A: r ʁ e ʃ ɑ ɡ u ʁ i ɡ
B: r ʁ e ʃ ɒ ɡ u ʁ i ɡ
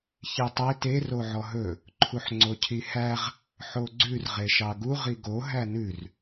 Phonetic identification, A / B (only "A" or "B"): A